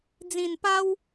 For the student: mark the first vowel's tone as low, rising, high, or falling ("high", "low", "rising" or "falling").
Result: low